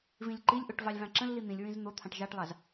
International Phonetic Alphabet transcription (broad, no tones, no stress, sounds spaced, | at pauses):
v ĩ lʲ ǃ i lʲ ʔ o ʈ v ɑ lʲ v ɑ̃ ǁ ə̃ lː i n̪ ĩ lʲ ɹ ĩ z n̪ o t̪ʰ ɑ̃ ʈ ʒ ɑ ʈ lˠ ɑ z